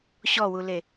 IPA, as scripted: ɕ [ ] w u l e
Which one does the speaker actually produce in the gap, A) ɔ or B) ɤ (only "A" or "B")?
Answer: A